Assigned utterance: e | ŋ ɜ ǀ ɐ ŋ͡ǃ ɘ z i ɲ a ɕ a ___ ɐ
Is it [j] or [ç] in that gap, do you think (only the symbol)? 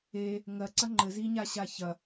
ç